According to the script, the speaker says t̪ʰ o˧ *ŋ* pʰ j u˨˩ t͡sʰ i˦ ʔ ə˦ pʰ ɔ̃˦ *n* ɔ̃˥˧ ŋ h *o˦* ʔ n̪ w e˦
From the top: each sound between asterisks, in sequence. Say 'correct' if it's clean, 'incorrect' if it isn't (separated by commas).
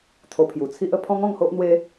incorrect, incorrect, correct